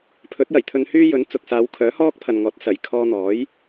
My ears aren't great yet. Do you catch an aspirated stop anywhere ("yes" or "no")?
yes